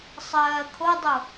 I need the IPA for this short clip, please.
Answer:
sˤ ɜː kʰ o dˤ o

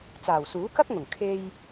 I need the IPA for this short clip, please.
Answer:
t͡s aː˨˩ w s uː˨˥ k ɐ˥ k̚ ŋ ʊ˨˩ ŋ kʰ e˧ j

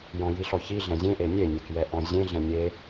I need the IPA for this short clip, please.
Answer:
j ɔ̃ j i ɬ ɔ ç i ɮ ɛ̃ zʲ ẽ ʔ e nʲ e nʲ e k j ɛ ʔ ɔ̃ zʲ ẽ ɮ ɛ̃ nʲ e

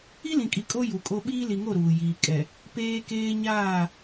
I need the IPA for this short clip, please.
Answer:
i˦ l ĩ˨ kʼ i˨ kʼ o˦ j u˨ kʼ o˦ ɓ iː˦ l i˨ ŋ o˦˨ ɾ uː˨ j iː˨ kʼ ɛ˨ | p eː˦ k eː˦ ɲ aː˦˨

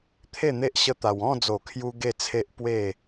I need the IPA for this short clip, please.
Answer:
t̪ʰ e˥˧ n̪ e˦ ʔ ɕ ə˦ t̪ a˧ w ɔ̃˥˧ d͡z o˨˩ kʰ j u˧ ɡ e˥˧ t͡sʰ e˦ ʔ p w e˥˧

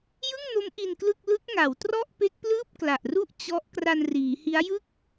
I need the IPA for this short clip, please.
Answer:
j ɯ˥˩ ŋ n o˦˥ m ʔ i˧ n k l ɯ˥˩ k̚ l ɯ˦˥ k̚ ŋ a˩˦ w t r ɔ˥˩ ʔ p e˦˥ k̚ p l ɯː˥˩ p̚ k l a˨˩ ʔ r u˥˩ ʔ t͡ɕ ɔ˦˥ ʔ k r a˧ n r iː˩˦ h i˦˥ a̯ j ɯ˥˩ k̚

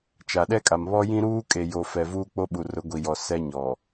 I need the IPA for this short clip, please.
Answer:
t͡ʃ a˨ ɗ ɛ˦ kʼ a˨ m β ɔ˦ j ĩ˦ ɾ uː˦ kʼ e˨ j o˨ f ɛ˨ v uː˦ k͡p o˦ ɓ u˨ r ʊ˨˦ ɡʷ i˨ j ɔ˨ s ɛ˦ ɲ ɔ˨

